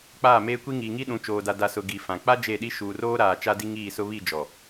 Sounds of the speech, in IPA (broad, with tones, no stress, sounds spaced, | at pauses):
k͡p aː˦˨ m eː˦ kʷ i˦ ŋ iː˨ ŋ i˦ ɗ ũ˨˦ t͡ʃ oː˨ d a˨ d a˨ s ʊ˨ ɡ i˨ f ã˨ k͡p a˦ d͡ʒ e˦˨ ɗ i˦ ʃ uː˨ r oː˦ ɾ aː˨ t͡ʃ a˦ d i˦ ŋ iː˦˨ s ʊ˦ β i˦˨ d͡ʒ ɔ˨